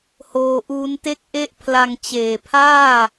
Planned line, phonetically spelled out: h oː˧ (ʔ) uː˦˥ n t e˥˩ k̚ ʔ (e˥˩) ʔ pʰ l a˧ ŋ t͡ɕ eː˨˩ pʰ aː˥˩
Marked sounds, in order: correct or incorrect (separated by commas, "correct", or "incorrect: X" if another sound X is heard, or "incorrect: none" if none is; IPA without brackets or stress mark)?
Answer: correct, incorrect: e˦˥